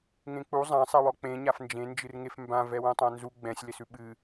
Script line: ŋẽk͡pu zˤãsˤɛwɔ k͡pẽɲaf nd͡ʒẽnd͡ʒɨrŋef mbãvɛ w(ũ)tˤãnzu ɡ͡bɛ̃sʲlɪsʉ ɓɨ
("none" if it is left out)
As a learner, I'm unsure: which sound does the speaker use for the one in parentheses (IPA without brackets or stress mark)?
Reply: ũ